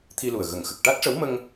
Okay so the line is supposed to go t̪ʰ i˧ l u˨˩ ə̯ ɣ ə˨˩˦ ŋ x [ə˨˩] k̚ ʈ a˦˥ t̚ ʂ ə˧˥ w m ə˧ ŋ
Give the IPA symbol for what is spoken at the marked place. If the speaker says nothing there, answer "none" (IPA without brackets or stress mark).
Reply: ə˨˩